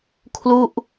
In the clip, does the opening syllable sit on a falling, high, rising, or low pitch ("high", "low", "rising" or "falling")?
falling